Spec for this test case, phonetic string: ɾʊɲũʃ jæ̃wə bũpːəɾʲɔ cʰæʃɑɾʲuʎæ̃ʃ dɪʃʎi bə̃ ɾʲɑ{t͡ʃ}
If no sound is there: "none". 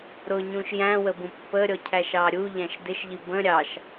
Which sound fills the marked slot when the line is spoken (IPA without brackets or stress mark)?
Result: ʃ